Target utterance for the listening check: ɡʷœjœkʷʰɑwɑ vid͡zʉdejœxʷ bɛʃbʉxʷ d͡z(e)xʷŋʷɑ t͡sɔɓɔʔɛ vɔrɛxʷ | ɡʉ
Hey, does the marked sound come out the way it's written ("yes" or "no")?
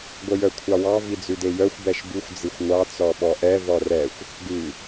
no